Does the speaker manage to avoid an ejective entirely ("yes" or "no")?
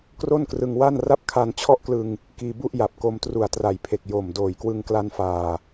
yes